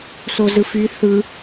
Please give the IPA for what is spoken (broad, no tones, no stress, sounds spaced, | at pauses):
s o z ɯ f y θ ɯ